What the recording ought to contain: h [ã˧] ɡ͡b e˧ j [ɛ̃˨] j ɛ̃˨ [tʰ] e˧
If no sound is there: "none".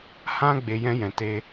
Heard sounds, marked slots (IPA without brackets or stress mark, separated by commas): ã˦, ɛ̃˦, t